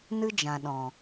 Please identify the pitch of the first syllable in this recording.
high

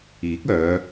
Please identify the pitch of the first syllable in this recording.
rising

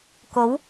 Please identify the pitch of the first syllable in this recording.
rising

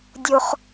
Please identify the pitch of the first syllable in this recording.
high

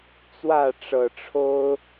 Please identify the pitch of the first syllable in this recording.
falling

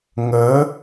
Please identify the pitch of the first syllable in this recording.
rising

